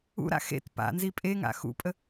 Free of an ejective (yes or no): no